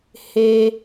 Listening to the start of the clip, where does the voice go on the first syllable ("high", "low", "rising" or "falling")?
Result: high